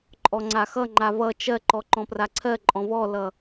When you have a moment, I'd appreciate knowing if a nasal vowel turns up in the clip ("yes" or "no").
yes